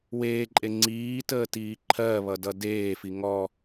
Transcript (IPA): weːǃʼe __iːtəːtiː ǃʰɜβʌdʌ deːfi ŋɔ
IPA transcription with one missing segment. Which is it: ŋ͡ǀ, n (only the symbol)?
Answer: ŋ͡ǀ